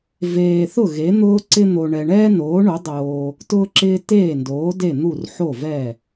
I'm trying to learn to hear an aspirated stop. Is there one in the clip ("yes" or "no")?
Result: no